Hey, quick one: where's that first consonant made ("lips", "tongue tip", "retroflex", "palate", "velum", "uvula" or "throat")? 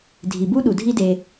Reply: tongue tip